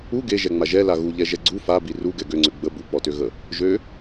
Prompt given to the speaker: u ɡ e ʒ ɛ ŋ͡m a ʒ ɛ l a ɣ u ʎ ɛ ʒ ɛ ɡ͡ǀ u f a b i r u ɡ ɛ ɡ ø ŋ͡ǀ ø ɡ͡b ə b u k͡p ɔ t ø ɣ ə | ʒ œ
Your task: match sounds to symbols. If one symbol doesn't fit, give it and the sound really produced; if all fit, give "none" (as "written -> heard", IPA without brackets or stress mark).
œ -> ø